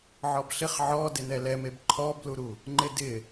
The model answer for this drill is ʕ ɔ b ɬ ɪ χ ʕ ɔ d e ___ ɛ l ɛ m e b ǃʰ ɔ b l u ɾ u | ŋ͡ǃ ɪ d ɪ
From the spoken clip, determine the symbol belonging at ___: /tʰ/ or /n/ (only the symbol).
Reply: n